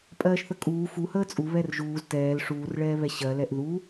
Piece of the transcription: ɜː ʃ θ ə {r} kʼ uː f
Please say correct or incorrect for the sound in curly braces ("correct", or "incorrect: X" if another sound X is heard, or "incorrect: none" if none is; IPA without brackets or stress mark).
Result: incorrect: none